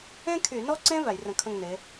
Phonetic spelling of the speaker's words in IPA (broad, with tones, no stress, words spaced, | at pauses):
ẽ˥kʰy˧˩˧ nɔ˥ǀẽ˥ væ˧˩˧jrə̃˧˩˧kʰə̃˥˨ŋne˨˦